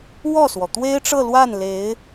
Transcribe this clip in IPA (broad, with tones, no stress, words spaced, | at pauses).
wɔ˥˩swɔ˩ t̪we˥ɪ̯ʈ͡ʂɤ˥˧lwa˥˩n le˧˥ɪ̯